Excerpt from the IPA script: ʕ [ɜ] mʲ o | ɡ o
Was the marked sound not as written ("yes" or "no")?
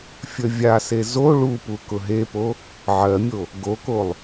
no